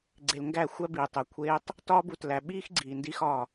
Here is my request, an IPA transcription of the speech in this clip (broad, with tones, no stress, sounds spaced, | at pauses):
ɡ͡ǀ e˨ l ŋ ɡ æ˦˨ xʷ æ˦ b i˨ tˤ e˨ kʷʰ eː˦ tˤ | t ɒː˦ b u˨ t l æ˨ ɓ iː˦ x ɡ͡ǀ iː˨ n d i˦ x ɒː˦˨